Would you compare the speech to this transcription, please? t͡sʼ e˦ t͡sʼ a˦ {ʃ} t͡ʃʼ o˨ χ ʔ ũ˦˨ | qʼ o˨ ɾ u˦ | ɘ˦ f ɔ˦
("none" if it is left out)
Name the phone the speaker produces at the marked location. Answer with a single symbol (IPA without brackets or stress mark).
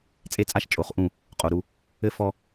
ʃ